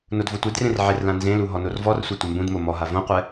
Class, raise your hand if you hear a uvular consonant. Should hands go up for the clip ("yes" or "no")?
yes